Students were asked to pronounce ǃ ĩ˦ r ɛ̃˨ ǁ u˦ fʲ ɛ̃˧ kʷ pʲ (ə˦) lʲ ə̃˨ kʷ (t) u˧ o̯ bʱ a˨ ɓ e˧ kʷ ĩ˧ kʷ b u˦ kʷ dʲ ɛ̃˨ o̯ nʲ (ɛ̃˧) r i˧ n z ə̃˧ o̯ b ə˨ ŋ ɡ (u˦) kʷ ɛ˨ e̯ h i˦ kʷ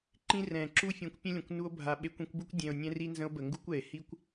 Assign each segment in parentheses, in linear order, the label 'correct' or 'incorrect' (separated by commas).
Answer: incorrect, incorrect, correct, correct